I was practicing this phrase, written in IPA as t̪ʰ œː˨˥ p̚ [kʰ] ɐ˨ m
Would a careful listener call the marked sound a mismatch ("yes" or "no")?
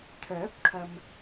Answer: no